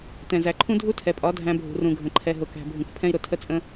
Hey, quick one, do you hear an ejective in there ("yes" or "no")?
yes